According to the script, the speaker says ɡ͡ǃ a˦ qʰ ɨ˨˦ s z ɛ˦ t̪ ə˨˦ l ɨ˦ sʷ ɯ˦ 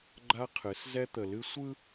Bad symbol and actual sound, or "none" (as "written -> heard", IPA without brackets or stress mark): ə˨˦ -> ə˨